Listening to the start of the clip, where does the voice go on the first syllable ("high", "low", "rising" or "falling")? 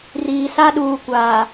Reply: low